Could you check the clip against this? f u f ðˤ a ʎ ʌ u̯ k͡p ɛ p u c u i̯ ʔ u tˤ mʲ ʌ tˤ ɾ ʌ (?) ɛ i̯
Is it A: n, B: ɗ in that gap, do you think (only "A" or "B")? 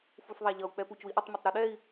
B